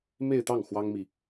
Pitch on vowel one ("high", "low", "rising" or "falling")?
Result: falling